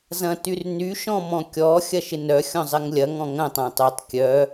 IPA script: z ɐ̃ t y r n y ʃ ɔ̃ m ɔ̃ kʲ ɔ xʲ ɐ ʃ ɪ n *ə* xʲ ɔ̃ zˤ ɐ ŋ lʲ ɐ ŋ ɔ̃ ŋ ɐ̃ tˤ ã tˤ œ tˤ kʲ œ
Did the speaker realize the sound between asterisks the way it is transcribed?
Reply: no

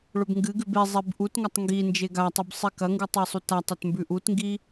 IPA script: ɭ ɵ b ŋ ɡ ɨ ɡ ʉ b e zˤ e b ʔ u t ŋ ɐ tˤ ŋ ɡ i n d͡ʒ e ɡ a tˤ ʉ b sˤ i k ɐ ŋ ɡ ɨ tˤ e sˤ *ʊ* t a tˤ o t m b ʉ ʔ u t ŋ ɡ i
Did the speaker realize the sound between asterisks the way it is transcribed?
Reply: no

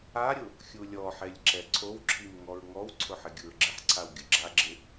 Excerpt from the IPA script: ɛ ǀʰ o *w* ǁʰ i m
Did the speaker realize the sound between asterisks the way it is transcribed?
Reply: yes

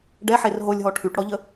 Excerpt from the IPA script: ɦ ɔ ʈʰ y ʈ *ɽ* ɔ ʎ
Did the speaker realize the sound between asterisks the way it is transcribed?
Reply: yes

